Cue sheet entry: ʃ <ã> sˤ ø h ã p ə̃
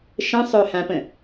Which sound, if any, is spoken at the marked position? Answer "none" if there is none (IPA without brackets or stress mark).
ə̃